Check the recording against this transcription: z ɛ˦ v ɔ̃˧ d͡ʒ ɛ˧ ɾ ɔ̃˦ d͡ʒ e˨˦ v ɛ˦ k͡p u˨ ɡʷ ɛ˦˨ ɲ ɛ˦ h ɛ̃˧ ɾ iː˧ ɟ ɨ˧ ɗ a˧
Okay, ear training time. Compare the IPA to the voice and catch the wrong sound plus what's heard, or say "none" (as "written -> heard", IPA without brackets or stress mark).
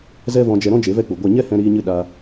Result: ɟ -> ɲ